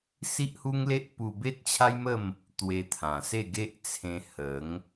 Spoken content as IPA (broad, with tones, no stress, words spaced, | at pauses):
si˦ʔhu˦ŋle˦ʔ pu˧be˦t̚t͡ɕʰa˦jmə˥˧m | t̪we˧t̪ʰã˨˩se˥˧ ɡe˦ʔt͡sʰẽ˧ hə˨˦ŋ